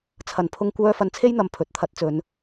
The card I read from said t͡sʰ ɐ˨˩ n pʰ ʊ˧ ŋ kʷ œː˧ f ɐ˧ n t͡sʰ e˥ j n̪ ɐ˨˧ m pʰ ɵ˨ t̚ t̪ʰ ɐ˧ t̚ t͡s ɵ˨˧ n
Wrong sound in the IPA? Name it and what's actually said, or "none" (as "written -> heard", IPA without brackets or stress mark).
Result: none